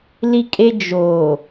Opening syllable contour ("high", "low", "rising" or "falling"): high